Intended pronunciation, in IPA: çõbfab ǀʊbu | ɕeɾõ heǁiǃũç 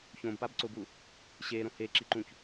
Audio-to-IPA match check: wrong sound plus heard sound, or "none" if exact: f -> p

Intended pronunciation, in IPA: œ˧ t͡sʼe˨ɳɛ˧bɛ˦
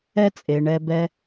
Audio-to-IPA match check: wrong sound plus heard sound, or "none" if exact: œ˧ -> ɛ˧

